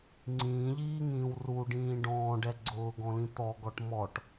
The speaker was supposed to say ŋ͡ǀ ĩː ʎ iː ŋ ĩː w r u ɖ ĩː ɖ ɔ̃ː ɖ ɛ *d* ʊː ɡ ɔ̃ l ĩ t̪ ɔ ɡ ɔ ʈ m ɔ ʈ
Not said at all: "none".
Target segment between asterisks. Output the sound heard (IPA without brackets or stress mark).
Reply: ɡ͡ǀ